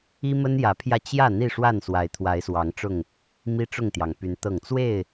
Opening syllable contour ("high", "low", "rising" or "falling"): high